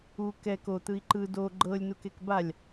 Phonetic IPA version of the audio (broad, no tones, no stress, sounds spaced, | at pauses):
u k ɛ k o t̪ ɯ i̯ ǃ ɯ d o ɡ͡ǃ ɤ lʲ n u k e k b a lʲ